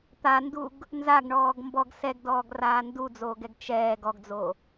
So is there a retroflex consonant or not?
yes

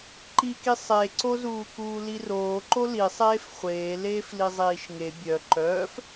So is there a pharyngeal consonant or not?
no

